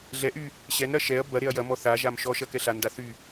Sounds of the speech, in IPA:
ɮ ɛ ʔ y | ɕ ɛ n ɾ ɐ ʃ ɛ ɐ̯ b ɐ ɾ e ɐ̯ j ɐ m ɔ θ a ʒ a m ʃ ɔ ʃ ɐ k ɛ ɬ a n d a θ y

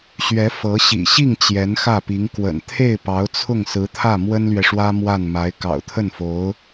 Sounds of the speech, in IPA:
ɕ ɥ ɛ˧˥ f ɤ˧˥ ɕ ḭ˨˩ ɕ i˥˩ ŋ t͡ɕ j ɛ˧˥ n x ä˥˩ p i˧˥ ŋ k w ə̰˨˩ n t̪ʰ e˥˩ ɪ̯ p ɑ˧˥ ʊ̯ t͡sʰ ʊ˥˩ ŋ s ɹ̩˧˥ t̪ʰ ä˥˩ m w ə˥ n l ɥ ɛ˨ ʂ w ä˥ m w a˥˩ n m a˧˥ ɪ̯ k ɑ̰˨˩ ʊ̯ t̪ʰ ə˥˩ n f o˧˥ ʊ̯

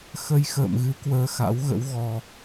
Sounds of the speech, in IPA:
x ə˧ j x ə̰ː˧˨ m ɣ ɨ˨˦ k w əː˧ x a̰˧˥ w ɣ ə̰˧˥ w ɣ ɔ˧

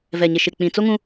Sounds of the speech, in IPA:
v ɛ˨ ɲ ɪ˨ ʃ ɪ˨ k͡p ĩ˨ t͡s o˦ ŋ ũ˦

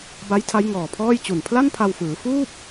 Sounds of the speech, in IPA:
b a˦˥ j tʰ a˦˥ j ŋ ɔː˨˩ pʰ ɔː˥˩ j t͡ɕ u˨˩ n pʰ l a˥˩ n pʰ a˧ w f ɯː˩˦ f uː˥˩ p̚

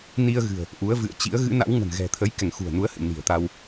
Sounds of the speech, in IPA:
n i˧ ə̯ ɣ ɨ̤˨˩ ə̯ | ʔ u˨˦ ə̯ v ɨ̰˧˨ ə̯ t͡ɕ ḭ˧˥ ə̯ ɣ ɨ̰˧˥ n a̰˧˥ w ŋ ə̤˨˩ n ɣ ɛ̤˨˩ t̪ʰ ə˨˦ j k ɛ˧˩ ŋ x ṳ˨˩ ə̯ n u˨˦ ə̯ h ɨ̰˧˨ n i̤˨˩ ə̯ t̪ a˧ w

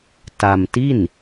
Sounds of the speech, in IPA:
t a˧ m t i˥˩ n

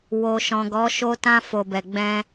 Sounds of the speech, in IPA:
w o˨ ʃ ɔ̃˨ ɡ ɔ˨˦ ʃ o˧ t ã˧ f o˨ b ɛ˨ ɡ͡b ɛ̃˧

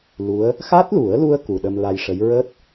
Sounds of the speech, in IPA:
l u˧˥ ə̯ | x a˦˥ t̚ l u˨˩˦ ə̯ l u˧ ə̯ k u˨˩ ɗ ə˧ m l a˧ j ʂ ə˧˥ j ɹ əː˦˥ t̚

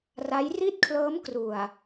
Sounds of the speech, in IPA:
r a˦˥ j r i˥˩ t̚ kʰ l ɤː˦˥ m k r u˨˩ a̯

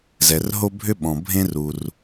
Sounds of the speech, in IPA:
z ɛ˩ r ɦ o˧ bʱ ʏ˧ ɓ ɔ̃˩ bʱ ẽ˧ r u˩ r

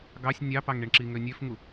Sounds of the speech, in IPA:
ɡ ɑ sʲ nʲ ɑ p ɑ ŋ ɳ i ɳ ǁ i ŋ ø nʲ ø f ŋ u

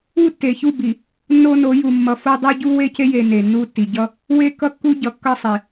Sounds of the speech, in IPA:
u˦ tː e˨ ç u˦˨ b i˨ | nː o˦ n o˨˦ j u˨ mː ʌ˨ f o˦ dˤ u˦ ɟ u˦ w e˦ c e˦ j e˨ n e˨ nː u˦˨ tː i˨ ɟ ʌ˦ | w e˦ k ʌ˦ kː u˦ ɟ ʌ˨ kː ʌ˦˨ sˤ i˨

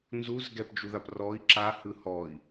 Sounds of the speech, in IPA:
n z u z ɡ ɛ p d͡ʒ u ð a p r ɔ i̯ ǁ a h ɯ h ɔ i̯

